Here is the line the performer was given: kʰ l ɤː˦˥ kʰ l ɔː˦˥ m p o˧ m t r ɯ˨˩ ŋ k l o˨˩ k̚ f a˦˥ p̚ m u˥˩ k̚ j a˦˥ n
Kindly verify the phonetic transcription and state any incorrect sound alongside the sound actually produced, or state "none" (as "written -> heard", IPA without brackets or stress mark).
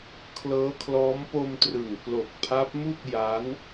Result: f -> pʰ